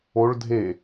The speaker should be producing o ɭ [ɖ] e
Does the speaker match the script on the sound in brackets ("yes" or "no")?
no